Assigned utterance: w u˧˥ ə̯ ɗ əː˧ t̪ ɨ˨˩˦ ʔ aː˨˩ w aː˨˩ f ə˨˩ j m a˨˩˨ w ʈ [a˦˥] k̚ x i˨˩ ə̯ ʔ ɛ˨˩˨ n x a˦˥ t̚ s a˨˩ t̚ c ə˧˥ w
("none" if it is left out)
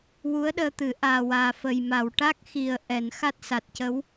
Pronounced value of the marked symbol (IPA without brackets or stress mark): a˦˥